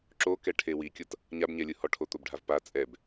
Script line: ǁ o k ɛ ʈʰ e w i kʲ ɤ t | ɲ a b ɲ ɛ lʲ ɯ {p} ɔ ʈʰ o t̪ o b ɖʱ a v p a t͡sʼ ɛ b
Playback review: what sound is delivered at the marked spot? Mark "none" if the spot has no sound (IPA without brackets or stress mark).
h